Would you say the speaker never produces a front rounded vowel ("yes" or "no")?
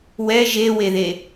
yes